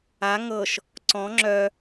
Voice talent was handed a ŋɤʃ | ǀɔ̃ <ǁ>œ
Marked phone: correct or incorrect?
incorrect: ŋ͡ǁ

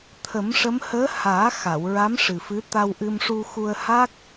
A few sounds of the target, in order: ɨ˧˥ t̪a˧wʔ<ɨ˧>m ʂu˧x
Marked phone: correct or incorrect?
correct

